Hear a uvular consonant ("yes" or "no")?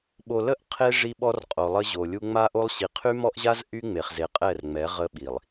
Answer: yes